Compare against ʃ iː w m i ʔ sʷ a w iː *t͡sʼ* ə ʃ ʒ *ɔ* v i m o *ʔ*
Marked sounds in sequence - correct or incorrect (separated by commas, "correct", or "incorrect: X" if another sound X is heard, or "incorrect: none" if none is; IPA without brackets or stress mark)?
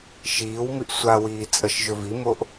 correct, incorrect: ɵ, correct